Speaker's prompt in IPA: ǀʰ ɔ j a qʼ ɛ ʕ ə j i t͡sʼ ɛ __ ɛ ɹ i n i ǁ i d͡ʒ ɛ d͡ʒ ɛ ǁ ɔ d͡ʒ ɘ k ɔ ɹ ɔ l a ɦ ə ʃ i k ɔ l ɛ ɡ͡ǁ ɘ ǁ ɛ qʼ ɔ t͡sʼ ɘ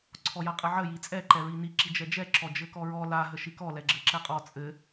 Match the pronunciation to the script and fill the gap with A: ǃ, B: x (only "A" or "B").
A